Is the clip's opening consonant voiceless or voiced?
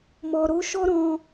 voiced